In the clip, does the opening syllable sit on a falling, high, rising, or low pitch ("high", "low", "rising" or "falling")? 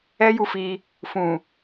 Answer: high